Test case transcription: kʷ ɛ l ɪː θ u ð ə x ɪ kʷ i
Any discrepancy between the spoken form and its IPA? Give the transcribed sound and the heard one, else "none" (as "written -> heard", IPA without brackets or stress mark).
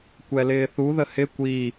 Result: x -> h